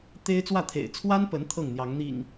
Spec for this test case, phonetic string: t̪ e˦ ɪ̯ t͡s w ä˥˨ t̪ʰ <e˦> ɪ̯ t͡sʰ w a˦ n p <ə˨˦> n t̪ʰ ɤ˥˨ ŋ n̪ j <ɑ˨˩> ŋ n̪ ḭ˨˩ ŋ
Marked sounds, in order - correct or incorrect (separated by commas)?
incorrect, correct, incorrect